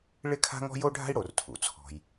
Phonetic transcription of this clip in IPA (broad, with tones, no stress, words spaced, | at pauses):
ɭɪ˥kʰa̤˥ŋɔ̤˥ jo˥ɖʱa̤˥i̯ɽo˩r tʰṵ˩t͡sʰɔ̤˩j